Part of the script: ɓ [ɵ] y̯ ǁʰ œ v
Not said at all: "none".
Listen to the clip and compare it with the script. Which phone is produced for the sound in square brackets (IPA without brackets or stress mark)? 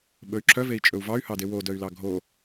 ɵ